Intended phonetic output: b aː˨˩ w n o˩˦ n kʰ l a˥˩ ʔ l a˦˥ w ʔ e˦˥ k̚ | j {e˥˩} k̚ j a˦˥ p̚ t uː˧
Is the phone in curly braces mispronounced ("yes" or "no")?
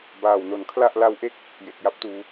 yes